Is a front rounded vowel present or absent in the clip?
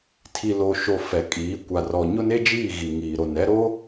absent